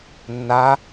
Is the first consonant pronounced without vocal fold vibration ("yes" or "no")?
no